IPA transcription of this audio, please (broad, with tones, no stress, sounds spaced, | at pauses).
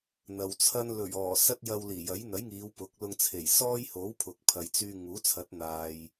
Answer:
n̪ ɐ˨ w t͡sʰ ɐ˥ n l ɵ˨˩ ɥ ɔː˨˩ s ɐ˥ t̚ j ɐ˧ w l iː˨˩ j ɐ˨˥ j n̪ ɐ˨˥ j ŋ iː˨˧ w p ʊ˨˥ k̚ l ʊ˧ ŋ t͡sʰ e˨˩ j s ɔː˥ j h o˨˥ w pʰ ʊ˨ k̚ pʰ ɐ˨ j t͡s yː˧ ŋ uː˨˥ t͡sʰ ɐ˨˥ t̚ n̪ aː˨ j